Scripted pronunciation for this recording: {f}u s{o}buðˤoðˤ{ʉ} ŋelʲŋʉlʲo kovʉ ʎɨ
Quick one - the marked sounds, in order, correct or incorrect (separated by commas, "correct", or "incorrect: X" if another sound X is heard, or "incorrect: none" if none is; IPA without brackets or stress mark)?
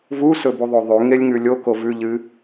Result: incorrect: v, incorrect: ɵ, correct